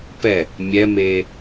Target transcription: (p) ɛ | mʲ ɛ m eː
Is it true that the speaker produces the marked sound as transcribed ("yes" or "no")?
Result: yes